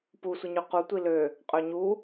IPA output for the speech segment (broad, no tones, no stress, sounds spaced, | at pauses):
p u sʷ i ɲ y q u tʷ i l ø | qʼ ø ɲ u